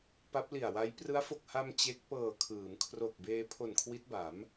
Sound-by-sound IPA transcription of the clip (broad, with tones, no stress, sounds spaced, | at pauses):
p a˦˥ p̚ l i˨˩ a̯ w a˦˥ j p r ɯ˦˥ a̯ f o˨˩ k̚ h a˧ m t͡ɕ e˦˥ k̚ p ɤː˨˩ kʰ ɯː˩˦ m kʰ r o˨˩ k̚ b eː˧ pʰ o˨˩ n kʰ w i˦˥ t̚ b a˩˦ m